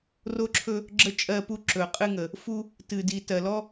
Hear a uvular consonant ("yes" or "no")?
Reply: yes